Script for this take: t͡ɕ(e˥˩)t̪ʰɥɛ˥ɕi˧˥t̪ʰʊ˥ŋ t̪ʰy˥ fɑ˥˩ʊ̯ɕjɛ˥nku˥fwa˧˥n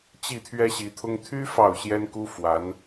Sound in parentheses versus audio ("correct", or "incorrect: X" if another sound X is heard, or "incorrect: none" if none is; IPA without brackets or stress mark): incorrect: i˥˩